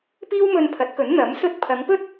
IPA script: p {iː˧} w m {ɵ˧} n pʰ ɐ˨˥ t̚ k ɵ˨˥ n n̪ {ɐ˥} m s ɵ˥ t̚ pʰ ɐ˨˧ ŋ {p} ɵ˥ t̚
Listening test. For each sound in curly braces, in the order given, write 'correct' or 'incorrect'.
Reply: incorrect: iː˥, correct, incorrect: ɐ˨˥, correct

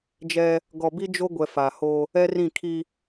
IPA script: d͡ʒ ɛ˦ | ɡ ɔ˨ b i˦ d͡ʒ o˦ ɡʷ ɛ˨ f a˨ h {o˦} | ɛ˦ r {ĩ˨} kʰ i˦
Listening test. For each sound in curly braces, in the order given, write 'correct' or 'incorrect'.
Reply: correct, incorrect: ĩ˦˨

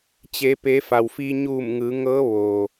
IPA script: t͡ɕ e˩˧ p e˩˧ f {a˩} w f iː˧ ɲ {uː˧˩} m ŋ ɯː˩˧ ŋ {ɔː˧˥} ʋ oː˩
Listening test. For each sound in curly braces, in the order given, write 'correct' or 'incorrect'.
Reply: correct, correct, incorrect: ɤː˧˥

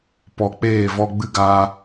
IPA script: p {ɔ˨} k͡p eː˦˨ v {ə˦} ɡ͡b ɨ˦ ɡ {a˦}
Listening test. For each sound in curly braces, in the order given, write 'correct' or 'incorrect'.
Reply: correct, incorrect: ɔ˦, incorrect: aː˦

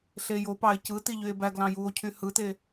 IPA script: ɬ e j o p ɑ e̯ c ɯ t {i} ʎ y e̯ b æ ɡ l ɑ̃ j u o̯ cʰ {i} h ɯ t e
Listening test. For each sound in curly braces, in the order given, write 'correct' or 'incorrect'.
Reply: correct, incorrect: y

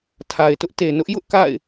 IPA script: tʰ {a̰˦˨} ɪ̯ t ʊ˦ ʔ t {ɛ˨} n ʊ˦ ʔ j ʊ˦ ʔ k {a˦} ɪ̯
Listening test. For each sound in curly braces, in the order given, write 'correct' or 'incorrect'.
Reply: incorrect: a˨, incorrect: e˨, incorrect: a̰˦˨

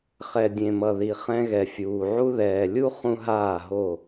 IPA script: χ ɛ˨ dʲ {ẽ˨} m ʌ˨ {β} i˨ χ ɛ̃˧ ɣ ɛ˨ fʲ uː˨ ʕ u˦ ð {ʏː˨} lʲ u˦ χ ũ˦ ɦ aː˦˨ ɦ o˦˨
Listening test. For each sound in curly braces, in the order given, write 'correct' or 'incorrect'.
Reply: correct, incorrect: ð, incorrect: ɛː˨

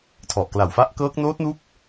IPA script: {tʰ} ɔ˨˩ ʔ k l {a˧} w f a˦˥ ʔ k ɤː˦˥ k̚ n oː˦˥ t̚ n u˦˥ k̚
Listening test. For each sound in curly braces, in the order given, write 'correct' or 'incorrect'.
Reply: correct, incorrect: a˨˩

